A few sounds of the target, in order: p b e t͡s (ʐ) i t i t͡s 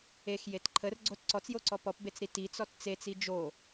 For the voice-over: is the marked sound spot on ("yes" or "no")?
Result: no